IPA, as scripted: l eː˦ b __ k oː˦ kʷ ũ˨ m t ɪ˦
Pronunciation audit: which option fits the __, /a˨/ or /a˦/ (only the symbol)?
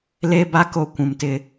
a˦